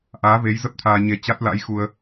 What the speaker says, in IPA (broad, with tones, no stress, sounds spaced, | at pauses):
ʔ aː˨˦ v e˨˦ j z ə˦˥ p̚ t̪ʰ aː˧ ɲ e˧ t͡ɕ a˦˥ t̚ l a̰˧˥ j x u˧ ə̯